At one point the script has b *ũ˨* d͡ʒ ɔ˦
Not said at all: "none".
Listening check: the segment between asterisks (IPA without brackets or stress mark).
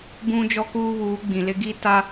ũ˦